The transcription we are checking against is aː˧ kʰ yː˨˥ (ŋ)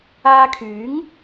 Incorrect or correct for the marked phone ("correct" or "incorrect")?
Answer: correct